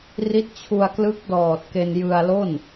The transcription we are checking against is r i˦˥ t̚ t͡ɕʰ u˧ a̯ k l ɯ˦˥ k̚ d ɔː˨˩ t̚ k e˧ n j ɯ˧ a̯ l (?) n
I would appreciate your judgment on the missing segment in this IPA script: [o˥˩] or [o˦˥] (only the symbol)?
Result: o˥˩